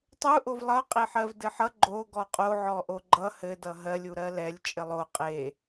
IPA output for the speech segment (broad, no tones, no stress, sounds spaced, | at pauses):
tˤ u ʔ o v lˠ ʌ qʼ e ħ ɜ v d ɘ ħ ʌ ɡ͡ǃ o ɡ ɔ qʼ o ʕ ɔ ʔ o ɡ͡ǃ ʌ h ɘ d ʌ ɦ ɜ lʲ u ɾ ɜ l ɛ lʲ t͡ʃʼ ɘ lˠ o qʼ e